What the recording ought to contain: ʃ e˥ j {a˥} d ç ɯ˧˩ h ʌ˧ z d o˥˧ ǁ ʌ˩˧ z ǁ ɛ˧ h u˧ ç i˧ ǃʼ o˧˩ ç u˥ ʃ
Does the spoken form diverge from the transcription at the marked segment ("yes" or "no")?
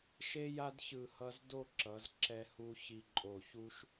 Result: no